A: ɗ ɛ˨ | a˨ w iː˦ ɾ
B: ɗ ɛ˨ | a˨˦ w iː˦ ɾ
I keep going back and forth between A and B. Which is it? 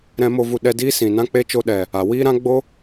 A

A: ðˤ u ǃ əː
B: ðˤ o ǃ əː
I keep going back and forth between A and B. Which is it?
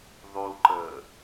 A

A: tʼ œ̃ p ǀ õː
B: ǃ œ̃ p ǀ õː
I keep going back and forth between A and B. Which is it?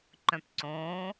B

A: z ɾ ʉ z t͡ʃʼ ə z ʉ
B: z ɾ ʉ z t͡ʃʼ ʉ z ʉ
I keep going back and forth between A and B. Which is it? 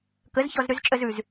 A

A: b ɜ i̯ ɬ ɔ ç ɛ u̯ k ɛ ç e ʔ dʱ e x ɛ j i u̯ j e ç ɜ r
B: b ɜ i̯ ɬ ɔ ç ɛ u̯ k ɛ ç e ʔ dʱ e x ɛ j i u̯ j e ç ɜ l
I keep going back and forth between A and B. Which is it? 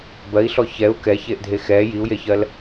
B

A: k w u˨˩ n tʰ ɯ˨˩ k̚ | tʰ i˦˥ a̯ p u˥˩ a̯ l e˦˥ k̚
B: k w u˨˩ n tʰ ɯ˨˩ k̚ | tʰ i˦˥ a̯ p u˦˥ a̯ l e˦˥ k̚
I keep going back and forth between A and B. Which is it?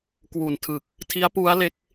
B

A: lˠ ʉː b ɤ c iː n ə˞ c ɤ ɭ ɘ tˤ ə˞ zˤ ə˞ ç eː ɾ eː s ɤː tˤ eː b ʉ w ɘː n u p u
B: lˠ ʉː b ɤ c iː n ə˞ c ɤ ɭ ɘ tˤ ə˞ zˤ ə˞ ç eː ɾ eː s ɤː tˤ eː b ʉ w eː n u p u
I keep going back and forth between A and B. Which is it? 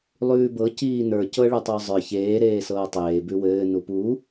A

